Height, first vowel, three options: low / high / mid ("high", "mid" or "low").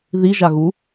high